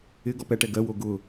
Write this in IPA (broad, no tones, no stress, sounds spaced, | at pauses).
ɪ ɡ ɔ p ɛ ʈ ɛ ɡ ɜ w o ɡ ʊ